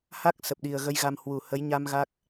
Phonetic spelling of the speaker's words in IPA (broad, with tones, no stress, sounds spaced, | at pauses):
h a˦˥ k̚ s ə˨˩ p̚ ɗ i˨˩ ə̯ ɣ ə˧ j ɣ a˧ m h w u˨˩ h ə˨˦ j ɲ a˧ m ɣ a˦˥ k̚